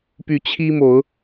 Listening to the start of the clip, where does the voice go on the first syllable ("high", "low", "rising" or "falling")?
rising